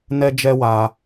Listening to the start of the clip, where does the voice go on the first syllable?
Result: high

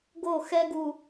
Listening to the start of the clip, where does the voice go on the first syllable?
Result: falling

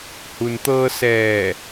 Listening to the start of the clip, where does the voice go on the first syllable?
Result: low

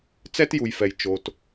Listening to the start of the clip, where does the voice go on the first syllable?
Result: high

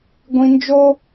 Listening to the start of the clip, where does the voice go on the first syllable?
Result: high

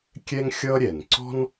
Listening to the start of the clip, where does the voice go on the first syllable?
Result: high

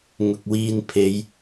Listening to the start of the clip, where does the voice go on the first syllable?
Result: low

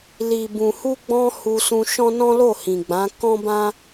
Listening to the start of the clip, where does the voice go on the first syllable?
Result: low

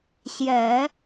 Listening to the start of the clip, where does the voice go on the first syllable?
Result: low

